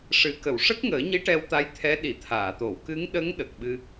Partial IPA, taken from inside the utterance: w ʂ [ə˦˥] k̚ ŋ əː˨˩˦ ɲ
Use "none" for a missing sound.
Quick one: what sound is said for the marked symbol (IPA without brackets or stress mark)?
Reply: ə˦˥